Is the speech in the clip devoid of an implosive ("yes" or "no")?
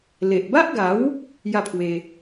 yes